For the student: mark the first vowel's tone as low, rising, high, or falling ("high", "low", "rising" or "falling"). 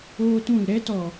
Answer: high